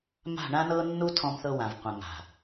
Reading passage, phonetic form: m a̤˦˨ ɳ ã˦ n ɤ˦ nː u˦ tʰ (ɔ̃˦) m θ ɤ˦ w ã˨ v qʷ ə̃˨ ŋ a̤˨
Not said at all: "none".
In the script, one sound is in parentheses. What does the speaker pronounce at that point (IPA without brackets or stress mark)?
ɔ̃˦